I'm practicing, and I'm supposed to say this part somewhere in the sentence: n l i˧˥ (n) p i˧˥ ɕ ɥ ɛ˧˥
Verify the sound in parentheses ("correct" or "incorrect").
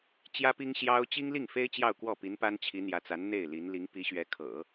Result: incorrect